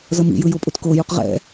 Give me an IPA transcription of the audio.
zʌmḭjɯ jopʼutkojuq ʁɛ̰

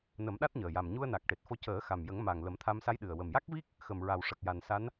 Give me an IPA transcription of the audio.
nə˨˩˦mɗa˦˥t̚ɲəː˨˩ja˨˩m ɲu˧ə̯ na˨˩k̚ʈe˨˩t̚fo˧ cəː˨˩˦ xa˨˩mjə˨˩˦ŋma˨˩ŋ lə˨˩˦mt̪ʰa˧m sa˧˥jɗɨ˨˩ə̯ wə˨˩mja˦˥k̚vi˦˥k̚ | xə˨˩mɹa˨˩w ʂə˨˩k̚ja˨˩nsa˧˥n

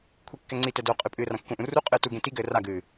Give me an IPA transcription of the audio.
kʷʰikːɛŋ͡ǀitɛ doːqʼɨpʼɨː rãkːũʔũ ru qʼɨːtuɡẽ tiɡɘː raɡɨː

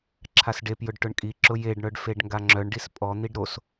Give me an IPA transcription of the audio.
ǁʰasɖepjʊɖ ʈʊɳkʼiǁʊ jeɖɳœɖ feɖŋɡaŋ͡ǁœɳɖis pʼɔn̪iɖ ɾos

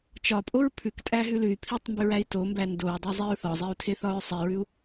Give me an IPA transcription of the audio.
t͡ʃɒpʼoɹ pʰʉktʼæɦʉ lʉy̯pʰitˤmbʉɹæi̯ tombæ ndoɹdˤʉzˤiɹ θɒzˤiu̯tʰeθɒɹ sˤiɹʉu̯

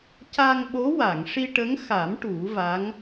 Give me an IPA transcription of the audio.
ca˧ŋɓo˧˥wa˨˩˨ŋ ʂi˧ʈə˧˥ŋxa˨˩˦m ʈu˨˩˦va˧˥ŋ

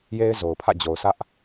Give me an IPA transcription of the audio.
je˦ɪ̯zo˨ʊ̯pʰä̰˦˨ d͡ʑo˨ʊ̯sä˦ʔ

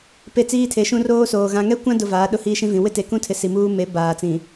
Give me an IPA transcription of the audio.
pe˦t͡siː˦tʰe˨˦ʃũ˦ roː˦ soː˨ ɣã˨ŋɛ˦kʷã˦dʊ˨ vaː˨˦ɗʊ˦ hiː˦ʃĩ˦vĩ˨ wɪ˦te˨kũ˦tʰɪ˨ si˨muː˦ me˨˦ baː˨t͡sĩ˨

